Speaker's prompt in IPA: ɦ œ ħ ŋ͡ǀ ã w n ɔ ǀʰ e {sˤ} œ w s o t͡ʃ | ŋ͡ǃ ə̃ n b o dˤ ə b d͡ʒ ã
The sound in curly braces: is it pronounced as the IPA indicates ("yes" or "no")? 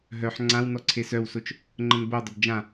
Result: no